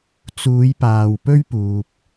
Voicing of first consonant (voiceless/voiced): voiceless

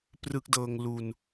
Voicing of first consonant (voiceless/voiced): voiceless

